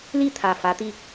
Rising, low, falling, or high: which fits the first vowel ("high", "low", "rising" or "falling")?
falling